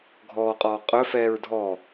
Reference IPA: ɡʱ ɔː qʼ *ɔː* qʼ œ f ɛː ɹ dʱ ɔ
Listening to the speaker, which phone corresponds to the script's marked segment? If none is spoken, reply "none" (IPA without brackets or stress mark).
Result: ɔː